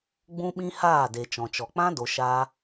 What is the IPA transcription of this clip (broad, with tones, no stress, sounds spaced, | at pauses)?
ɡ͡b ũ˦ ɓ ĩ˦ h aː˦˨ d e˨ t͡ʃ ɔ̃˨ t͡ʃ ɔ˨ k͡p ã˦ d o˨ ʃ aː˧